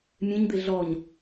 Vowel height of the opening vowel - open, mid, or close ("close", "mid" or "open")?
mid